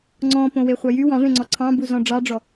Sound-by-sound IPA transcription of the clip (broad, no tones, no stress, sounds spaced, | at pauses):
ŋ͡ǀ ɔ̃ p õ w e χʷ ɑ j y w ɑ̃ ʐ ẽ ŋ͡ǀ ɔ ǀʰ ɑ̃ b u z ɔ̃ ɖ͡ʐ ɑ ɖ͡ʐ ɔ